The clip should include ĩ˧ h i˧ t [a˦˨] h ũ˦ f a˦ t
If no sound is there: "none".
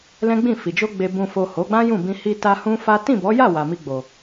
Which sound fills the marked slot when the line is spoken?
a˧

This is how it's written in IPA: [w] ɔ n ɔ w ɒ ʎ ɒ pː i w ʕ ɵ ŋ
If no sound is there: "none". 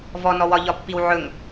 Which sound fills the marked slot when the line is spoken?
v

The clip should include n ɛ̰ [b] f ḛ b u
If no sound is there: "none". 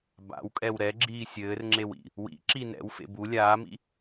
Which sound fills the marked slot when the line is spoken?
w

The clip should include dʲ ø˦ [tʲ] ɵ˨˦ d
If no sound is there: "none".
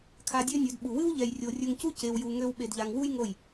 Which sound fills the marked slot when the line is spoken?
nʲ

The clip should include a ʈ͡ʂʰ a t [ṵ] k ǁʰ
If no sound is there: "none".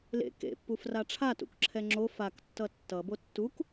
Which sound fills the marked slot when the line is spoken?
ṵ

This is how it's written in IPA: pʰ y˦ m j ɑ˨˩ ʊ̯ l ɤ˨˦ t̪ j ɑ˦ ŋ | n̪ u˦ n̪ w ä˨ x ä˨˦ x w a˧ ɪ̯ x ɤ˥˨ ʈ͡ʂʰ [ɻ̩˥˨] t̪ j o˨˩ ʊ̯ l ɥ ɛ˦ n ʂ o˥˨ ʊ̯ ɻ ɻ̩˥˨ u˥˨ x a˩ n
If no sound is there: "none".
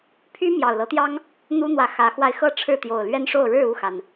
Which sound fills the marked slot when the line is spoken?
ɻ̩˥˨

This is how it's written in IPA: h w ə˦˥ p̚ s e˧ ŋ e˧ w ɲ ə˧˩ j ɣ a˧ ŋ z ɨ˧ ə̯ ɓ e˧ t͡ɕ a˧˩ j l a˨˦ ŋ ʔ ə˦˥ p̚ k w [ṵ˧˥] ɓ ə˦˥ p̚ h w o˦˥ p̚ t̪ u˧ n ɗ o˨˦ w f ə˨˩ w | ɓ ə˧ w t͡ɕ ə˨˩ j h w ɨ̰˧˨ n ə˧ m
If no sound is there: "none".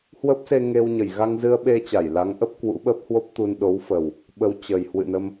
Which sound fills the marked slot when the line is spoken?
ṵ˧˥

